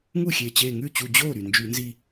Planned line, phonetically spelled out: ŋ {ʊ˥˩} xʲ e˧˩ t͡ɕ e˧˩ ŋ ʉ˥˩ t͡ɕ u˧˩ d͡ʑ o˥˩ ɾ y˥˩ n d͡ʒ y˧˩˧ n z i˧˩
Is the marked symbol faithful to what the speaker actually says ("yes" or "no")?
no